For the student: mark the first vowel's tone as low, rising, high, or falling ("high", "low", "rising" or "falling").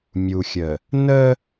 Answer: low